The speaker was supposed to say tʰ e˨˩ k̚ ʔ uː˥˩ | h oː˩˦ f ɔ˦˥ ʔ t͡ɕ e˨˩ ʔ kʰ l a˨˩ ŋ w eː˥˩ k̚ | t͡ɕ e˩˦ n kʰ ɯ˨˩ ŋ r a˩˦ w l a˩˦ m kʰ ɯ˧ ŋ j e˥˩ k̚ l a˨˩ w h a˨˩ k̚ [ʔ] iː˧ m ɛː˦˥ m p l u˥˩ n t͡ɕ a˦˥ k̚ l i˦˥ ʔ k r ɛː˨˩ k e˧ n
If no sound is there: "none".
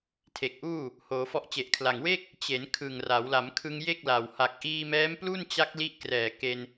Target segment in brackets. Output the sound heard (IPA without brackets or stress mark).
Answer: ʔ